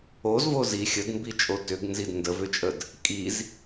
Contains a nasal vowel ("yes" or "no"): no